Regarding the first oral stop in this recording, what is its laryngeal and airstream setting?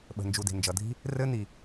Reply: implosive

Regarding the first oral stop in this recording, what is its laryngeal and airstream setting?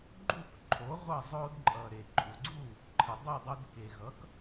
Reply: click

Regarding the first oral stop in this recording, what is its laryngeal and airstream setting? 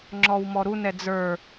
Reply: click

